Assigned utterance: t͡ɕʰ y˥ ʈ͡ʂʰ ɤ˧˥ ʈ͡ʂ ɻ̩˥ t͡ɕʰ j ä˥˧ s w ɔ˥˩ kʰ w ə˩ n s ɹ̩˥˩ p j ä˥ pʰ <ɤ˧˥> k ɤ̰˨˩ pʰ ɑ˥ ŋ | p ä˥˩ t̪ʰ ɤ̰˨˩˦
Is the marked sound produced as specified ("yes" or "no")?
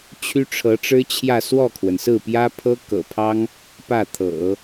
no